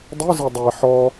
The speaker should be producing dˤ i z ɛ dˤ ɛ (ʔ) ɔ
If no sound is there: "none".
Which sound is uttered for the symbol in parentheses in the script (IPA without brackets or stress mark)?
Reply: ħ